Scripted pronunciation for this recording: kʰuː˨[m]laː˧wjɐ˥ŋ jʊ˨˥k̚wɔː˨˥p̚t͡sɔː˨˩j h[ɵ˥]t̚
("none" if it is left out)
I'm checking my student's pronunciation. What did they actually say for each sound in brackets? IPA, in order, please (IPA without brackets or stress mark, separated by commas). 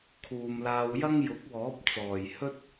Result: m, ɵ˥